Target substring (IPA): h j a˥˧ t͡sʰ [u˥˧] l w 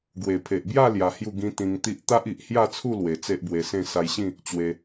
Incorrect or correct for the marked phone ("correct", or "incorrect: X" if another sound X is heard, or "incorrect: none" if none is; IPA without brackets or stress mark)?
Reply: correct